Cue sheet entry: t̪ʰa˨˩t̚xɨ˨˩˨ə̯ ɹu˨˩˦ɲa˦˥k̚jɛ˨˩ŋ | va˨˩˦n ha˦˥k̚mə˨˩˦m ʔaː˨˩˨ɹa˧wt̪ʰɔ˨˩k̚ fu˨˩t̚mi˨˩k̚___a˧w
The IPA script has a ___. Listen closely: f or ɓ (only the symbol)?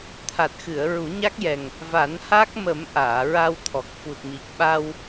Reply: ɓ